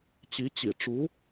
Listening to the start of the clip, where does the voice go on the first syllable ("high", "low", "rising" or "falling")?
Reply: rising